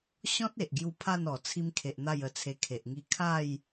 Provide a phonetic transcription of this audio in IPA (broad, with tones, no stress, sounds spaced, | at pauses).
ɕ ɔ̃˦ t̚ e˨ ʔ ɡ j u˧ pʰ a˥˧ n ɔ˨˩ t͡sʰ i˧ m kʰ e˨ ʔ n̪ a˥˧ j ə˧ t͡sʰ e˧ kʰ e˨ ʔ ŋ i˧ kʰ a˥˧ j